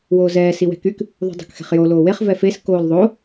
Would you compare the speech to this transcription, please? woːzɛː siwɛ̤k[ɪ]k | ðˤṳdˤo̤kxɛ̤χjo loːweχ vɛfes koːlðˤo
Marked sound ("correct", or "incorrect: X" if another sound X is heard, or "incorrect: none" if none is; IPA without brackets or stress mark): incorrect: y